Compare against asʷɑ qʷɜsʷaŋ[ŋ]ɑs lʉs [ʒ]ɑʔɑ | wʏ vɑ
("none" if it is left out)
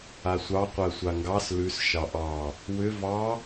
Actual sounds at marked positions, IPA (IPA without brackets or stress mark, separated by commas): ɡ, ʃ